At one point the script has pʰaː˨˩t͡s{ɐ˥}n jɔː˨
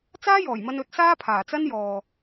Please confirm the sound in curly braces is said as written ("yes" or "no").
yes